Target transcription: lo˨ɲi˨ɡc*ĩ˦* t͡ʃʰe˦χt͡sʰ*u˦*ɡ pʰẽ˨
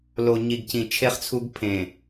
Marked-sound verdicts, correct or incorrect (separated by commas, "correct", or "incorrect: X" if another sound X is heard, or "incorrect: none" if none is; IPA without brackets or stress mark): incorrect: ĩ˨, correct